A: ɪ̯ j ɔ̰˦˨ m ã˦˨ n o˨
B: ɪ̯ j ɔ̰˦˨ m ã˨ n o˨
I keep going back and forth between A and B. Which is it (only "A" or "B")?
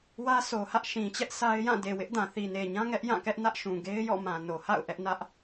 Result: B